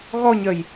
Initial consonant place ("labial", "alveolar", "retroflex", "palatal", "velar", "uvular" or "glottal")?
velar